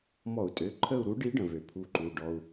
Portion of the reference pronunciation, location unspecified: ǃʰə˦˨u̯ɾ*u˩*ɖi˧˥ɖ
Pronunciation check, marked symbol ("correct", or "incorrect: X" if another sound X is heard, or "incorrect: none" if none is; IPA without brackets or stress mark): incorrect: u˧˥